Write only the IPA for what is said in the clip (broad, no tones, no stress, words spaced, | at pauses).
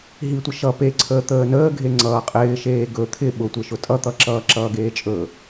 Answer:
ɦitʷə ʃʌ peǀʰəː t̪əːnəːɡʱe ŋ͡ǀʌːqʼɪːʃeː ɡɵ t̪ʰɪ ɓʊtʷeʃʊ tʼʌt̪ʌǁʌː ǁʌːɡeːt͡ʃʼɵ